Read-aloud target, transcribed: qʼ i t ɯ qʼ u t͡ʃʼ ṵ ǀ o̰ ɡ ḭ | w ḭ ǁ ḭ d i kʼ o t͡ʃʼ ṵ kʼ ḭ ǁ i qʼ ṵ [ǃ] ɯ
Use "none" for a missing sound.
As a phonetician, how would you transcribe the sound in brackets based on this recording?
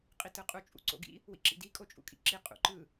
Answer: ǃ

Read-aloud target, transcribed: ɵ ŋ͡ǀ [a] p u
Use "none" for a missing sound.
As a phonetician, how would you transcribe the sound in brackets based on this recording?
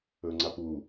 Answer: a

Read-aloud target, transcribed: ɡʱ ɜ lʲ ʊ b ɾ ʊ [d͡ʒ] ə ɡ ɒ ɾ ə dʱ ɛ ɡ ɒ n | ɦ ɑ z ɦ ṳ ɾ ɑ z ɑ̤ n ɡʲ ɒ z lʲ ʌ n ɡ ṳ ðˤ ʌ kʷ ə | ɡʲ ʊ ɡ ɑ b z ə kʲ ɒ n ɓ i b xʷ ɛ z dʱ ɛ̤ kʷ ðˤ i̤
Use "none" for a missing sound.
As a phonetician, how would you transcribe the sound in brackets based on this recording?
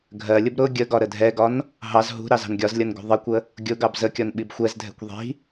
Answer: ɡʲ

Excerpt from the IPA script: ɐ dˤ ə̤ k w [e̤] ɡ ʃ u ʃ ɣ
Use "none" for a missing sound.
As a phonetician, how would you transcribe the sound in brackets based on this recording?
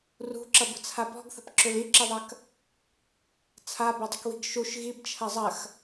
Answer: i̤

